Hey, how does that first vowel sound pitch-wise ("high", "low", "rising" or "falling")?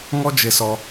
high